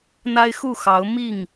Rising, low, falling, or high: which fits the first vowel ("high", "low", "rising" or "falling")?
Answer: high